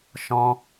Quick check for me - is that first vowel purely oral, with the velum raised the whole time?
no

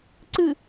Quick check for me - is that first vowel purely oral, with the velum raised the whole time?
yes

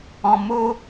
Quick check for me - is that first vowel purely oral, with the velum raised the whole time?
no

